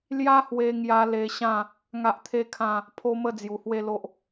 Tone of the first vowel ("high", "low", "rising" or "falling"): high